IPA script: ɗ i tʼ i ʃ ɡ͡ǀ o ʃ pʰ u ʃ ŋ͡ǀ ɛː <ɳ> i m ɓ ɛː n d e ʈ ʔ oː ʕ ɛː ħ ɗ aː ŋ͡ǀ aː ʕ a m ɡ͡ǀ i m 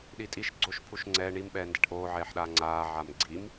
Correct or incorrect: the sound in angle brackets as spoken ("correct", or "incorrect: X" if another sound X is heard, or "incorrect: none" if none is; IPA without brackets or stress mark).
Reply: correct